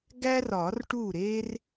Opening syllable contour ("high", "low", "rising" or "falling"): high